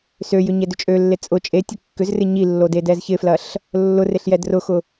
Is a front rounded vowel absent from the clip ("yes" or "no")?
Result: no